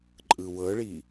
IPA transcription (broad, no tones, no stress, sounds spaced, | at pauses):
ǃʼ ɯ w ɤ ɭ i